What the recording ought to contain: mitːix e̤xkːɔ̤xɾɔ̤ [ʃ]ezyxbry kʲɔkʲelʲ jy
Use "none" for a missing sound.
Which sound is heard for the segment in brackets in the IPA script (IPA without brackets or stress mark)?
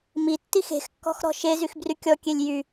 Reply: ʃ